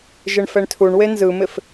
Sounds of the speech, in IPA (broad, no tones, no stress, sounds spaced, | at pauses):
ʒ ɪ ɳ f ɛ ɳ tʰ u ɳ w e n z ɯ m ɪ f